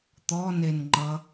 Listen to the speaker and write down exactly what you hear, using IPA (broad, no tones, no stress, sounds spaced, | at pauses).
t̪ ɔ n e n ŋ͡ǃ ʌ